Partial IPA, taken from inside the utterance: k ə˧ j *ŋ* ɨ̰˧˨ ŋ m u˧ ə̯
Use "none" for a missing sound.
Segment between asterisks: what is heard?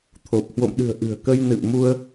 n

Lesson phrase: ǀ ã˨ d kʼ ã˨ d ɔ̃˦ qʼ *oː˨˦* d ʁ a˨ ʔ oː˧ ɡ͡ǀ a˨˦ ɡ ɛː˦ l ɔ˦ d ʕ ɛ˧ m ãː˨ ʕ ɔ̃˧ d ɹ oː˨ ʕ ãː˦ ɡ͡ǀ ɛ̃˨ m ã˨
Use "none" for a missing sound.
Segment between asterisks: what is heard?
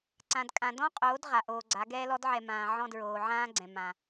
oː˨˦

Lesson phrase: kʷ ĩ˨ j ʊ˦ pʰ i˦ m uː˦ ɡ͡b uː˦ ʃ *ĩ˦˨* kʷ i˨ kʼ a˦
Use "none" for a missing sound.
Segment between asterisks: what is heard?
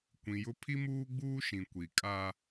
ĩ˨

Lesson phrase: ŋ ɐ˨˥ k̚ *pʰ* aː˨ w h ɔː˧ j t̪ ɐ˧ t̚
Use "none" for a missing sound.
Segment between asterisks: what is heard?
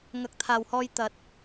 t̪ʰ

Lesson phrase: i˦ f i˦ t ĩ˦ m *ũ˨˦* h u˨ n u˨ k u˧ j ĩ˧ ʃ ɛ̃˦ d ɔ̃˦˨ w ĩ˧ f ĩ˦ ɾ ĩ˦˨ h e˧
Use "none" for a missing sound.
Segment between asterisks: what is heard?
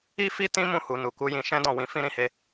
ũ˦˨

